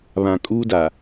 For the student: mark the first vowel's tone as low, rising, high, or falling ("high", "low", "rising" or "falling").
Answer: low